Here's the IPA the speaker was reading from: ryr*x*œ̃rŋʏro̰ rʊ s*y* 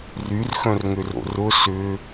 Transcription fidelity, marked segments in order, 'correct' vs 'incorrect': correct, incorrect: ʏ

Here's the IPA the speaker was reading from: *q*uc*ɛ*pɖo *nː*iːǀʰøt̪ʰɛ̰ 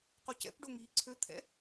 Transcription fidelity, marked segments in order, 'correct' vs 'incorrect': correct, incorrect: ɛ̰, incorrect: ŋ

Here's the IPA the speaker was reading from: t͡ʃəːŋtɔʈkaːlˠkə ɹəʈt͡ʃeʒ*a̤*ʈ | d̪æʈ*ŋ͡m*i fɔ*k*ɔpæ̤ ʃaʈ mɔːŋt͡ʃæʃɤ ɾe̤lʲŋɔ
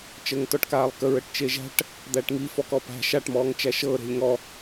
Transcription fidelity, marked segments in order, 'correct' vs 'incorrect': incorrect: æ̤, incorrect: ŋ, correct

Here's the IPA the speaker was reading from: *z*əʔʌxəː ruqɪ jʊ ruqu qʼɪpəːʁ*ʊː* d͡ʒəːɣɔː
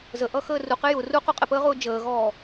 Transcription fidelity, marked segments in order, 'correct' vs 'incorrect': correct, correct

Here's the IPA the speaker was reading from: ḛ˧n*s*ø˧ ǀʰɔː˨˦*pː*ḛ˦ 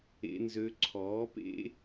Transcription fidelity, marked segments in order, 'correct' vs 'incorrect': incorrect: z, incorrect: p

